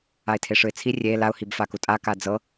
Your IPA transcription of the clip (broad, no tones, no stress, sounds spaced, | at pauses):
a ɪ̯ tʰ e ʂ ɯ ɪ̯ t͡sʰ i rʲ e l a ʊ̯ h i b f a k u tʼ a k a d͡z ɤ